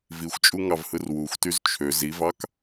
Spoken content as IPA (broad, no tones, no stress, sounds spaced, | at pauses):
v i xʷ t͡ʃʼ u ŋ ɑ v h ɯ r w u xʷ t y z t͡ʃʰ ø z i v ɑ k